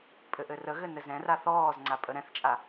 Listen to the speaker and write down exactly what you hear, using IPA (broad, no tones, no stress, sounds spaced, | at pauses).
pʼ ɘ ʔ ɘ r ə ɣ ɘ n ɘ z ɛ̃ r a θ ɔː z ŋ͡ǀ a pʼ ə ɾ ɛ̃ θ t͡ʃʼ a